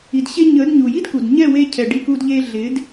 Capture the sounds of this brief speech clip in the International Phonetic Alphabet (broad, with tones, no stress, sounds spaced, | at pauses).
i˨ d ɕ e˧ ɲ ə˨˦ d ɲ u˨ j i˦ d k u˨ d ɲ ɛ˦˨ w e˧ cʰ ɛ˨ ɖ i˧ k u˧ d ʎ e˧ ɮ ɪ˨˦ d